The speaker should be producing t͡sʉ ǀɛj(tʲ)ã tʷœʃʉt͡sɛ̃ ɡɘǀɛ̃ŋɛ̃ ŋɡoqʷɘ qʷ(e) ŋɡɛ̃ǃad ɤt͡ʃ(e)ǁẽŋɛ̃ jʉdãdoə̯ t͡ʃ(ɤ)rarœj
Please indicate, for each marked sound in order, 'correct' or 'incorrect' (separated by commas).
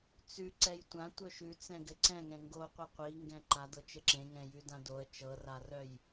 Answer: incorrect, incorrect, incorrect, correct